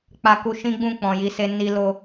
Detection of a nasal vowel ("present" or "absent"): present